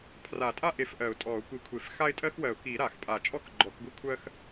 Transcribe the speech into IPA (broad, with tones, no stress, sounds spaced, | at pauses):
pʰ r a˨˩˦ tʼ a˦ ʔ e˨˩˦ f ʔ ɜ˨˩˦ ʊ̯ tʼ ɔ˨˩˦ ʊ̯ kʷ i˨˩˦ kʷʰ e˨˩˦ f x a˦ ɪ̯ tʼ ɜ˦ x w ɜ˨˩˦ ʊ̯ k i˨˩˦ ɾ a˨˩˦ x pʼ a˨˩˦ t͡ʃʼ ɔ˦ k ɡ͡ǃ ɔ˨˩˦ k ɡʷ i˦ kʷʰ ɜ˦ x